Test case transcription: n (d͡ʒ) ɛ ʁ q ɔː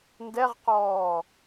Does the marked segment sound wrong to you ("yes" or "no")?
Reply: yes